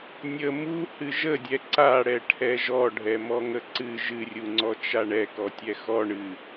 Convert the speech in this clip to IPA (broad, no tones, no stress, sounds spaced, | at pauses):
nʲ ə m u h ɨ ʒ ə dʲ ɛ ǀ a ɽ ɛ ʈʰ ɛ ʒ ɔ ɖʱ ɛ m ɔ ŋ ə ǀ ɨ ʒ ɨ rʲ u ŋ͡ǀ ɔ t͡ʃ a ɳ ɛ k ɔ tʲ ɛ x ɔ ɳ ɨ